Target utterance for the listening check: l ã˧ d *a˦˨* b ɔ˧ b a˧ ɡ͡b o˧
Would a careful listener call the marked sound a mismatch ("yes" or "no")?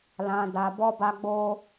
yes